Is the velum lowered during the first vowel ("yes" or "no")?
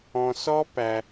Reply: yes